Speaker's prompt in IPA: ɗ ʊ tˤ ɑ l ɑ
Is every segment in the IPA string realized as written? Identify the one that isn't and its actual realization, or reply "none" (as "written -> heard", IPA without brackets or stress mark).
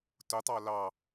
ɗ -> t